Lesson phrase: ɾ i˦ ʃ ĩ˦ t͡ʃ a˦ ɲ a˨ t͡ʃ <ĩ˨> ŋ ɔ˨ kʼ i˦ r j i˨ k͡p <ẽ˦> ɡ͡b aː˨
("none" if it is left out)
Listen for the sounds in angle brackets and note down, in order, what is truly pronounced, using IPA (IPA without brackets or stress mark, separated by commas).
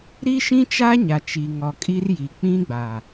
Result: i˨, ĩ˦